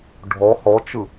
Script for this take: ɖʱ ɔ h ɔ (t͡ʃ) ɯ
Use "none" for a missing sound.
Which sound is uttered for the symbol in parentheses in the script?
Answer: t͡ʃ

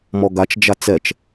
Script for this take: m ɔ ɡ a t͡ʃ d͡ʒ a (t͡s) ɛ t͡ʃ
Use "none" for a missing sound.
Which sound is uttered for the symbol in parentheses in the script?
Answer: t͡s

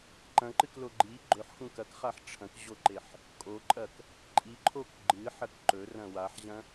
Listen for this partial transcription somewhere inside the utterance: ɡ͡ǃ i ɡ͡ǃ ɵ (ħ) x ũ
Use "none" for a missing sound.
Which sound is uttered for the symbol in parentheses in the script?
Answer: ħ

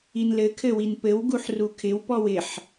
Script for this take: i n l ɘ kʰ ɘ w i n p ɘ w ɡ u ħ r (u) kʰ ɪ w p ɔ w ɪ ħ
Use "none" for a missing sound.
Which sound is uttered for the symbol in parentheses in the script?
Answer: u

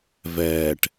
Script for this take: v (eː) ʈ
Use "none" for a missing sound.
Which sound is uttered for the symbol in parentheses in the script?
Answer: ɛː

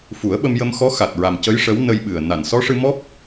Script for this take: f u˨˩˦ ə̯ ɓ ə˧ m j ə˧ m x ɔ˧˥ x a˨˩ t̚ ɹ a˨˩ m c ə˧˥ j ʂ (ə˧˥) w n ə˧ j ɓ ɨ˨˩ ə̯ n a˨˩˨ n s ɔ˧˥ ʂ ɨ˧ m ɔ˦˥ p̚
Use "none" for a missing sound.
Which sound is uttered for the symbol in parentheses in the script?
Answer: ə˧˥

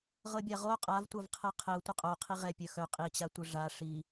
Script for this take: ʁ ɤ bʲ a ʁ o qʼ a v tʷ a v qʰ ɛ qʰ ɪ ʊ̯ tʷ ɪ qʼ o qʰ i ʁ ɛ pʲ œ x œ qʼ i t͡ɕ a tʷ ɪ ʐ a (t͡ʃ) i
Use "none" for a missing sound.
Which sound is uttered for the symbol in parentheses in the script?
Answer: ʂ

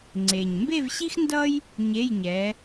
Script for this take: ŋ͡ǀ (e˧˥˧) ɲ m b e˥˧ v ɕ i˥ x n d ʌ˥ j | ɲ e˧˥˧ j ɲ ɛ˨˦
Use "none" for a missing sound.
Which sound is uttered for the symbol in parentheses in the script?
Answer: e˨˩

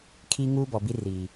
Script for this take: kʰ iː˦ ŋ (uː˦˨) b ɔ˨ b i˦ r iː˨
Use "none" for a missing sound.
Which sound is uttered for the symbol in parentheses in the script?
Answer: uː˦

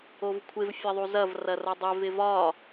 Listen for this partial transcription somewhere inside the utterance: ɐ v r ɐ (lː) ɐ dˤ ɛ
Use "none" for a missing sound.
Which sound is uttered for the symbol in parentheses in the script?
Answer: r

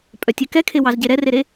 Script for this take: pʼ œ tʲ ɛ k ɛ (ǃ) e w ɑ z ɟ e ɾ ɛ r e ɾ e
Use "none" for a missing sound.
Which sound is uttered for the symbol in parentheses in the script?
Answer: kʰ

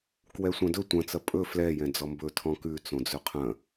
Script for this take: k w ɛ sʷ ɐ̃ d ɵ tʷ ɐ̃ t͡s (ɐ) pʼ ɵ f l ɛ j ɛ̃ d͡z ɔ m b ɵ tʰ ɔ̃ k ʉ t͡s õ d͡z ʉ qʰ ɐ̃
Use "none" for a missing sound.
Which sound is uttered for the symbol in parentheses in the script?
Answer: ɐ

